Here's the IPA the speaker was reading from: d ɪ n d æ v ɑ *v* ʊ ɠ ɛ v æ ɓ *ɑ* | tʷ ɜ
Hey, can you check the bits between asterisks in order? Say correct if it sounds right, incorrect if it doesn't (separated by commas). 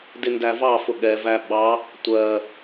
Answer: incorrect, correct